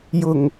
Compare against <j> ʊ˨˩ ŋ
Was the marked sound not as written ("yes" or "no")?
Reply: no